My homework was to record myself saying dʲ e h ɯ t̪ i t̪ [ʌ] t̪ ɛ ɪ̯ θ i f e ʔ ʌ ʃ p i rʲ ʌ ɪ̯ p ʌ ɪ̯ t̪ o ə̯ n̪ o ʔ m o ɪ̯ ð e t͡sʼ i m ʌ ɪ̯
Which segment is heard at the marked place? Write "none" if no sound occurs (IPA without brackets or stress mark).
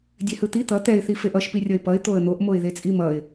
ʌ